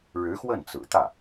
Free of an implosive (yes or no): yes